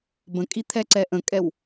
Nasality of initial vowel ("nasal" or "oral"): nasal